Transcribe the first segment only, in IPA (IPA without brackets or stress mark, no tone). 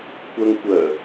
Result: kʷ